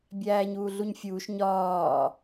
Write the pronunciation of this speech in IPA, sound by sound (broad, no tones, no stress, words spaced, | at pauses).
bʲæːɲuːɮuɲfʲuːʃ ɲɒː